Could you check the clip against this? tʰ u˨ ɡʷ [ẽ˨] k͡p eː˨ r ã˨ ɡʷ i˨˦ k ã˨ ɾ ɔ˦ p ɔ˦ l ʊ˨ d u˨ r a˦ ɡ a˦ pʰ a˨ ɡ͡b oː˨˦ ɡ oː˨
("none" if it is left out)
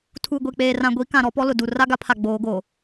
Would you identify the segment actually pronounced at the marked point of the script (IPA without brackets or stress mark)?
e˨